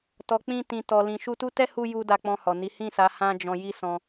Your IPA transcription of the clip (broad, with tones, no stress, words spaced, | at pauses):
tɔ˨k͡pĩ˧ tĩ˨tɔ˨ lĩ˨ʃu˧tu˦ tɛ˦hu˧ ju˦ da˧k͡pɔ̃˧hɔ˨ni˨˦ hĩ˦˨sa˨˦ hã˦d͡ʒɔ̃˧ ji˦sɔ̃˧